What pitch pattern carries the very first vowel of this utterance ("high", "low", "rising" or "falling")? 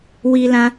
high